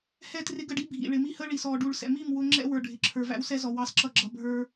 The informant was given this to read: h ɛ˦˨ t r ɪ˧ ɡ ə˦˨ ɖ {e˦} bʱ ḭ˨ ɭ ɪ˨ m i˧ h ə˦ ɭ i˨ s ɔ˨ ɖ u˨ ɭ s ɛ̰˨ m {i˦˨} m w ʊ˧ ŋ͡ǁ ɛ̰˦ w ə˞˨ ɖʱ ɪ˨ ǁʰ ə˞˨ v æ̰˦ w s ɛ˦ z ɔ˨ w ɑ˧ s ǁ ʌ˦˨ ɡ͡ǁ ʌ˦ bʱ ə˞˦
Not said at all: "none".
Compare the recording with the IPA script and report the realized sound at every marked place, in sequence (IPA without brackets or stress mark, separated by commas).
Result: i˦, i˦˨